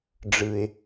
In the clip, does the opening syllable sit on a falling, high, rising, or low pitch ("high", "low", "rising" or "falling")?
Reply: low